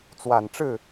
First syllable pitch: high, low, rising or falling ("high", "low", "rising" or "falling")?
low